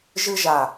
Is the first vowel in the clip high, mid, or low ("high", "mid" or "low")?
high